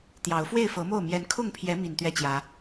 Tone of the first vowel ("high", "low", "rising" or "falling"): rising